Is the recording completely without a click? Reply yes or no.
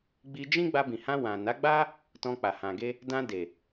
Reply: yes